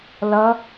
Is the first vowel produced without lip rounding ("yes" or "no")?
yes